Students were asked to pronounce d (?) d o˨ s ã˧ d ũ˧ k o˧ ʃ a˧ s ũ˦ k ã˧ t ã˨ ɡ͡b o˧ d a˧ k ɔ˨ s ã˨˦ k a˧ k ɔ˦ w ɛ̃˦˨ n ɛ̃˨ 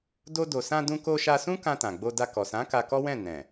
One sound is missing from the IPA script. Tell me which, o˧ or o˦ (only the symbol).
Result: o˧